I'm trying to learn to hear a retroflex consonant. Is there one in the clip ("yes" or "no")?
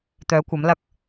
no